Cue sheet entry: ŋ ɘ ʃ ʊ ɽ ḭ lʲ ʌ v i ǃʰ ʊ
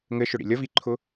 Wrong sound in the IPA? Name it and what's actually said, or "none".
none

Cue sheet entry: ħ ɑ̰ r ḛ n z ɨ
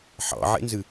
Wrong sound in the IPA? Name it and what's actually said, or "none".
r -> ʕ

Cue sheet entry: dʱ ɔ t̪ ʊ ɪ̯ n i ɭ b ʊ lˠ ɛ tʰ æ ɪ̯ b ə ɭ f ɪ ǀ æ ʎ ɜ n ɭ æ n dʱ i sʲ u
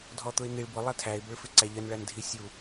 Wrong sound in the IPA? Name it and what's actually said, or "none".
none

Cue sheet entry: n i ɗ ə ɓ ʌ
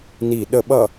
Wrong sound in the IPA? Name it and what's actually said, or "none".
none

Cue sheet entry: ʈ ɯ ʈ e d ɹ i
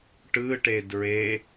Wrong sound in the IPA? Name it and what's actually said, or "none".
i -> e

